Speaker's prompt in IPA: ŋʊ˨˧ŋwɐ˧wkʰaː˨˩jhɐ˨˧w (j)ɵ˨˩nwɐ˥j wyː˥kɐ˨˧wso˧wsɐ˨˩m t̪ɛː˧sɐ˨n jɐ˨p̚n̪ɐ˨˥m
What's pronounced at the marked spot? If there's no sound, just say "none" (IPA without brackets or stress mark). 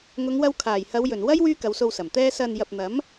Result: j